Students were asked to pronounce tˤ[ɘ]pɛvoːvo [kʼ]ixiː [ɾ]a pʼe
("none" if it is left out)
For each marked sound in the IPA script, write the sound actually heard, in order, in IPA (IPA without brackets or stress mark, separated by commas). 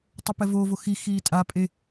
ɛ, x, tʼ